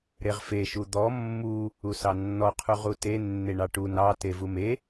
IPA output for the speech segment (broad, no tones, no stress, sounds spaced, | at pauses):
ɾ e ʁ f e ʃ u d̪ ɔ mː u | u s ɑ nː ɔ qʰ u ʁ u t e nː e ɳ ɑ ʈ u n ɑ t e v u m e